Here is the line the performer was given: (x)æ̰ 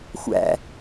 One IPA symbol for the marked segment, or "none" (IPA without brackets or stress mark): xʷ